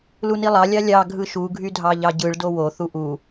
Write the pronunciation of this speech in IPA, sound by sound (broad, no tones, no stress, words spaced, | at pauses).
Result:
lunilˠɑ lʲɑlʲɑ ɡʱɯʃu ɡʱydʱɑʎɑɟɯɭ dowo θuʔu